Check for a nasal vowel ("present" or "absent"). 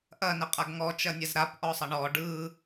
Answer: absent